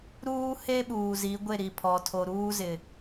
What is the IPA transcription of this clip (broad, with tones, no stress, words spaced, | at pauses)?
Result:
ɾuː˦he˦ ɓuː˨zi˨˦ ɡʷe˦˨ɾi˨pʰɔ˨tʰo˨ ɾuː˦zɪ˨